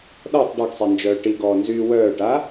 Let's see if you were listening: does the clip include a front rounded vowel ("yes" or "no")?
yes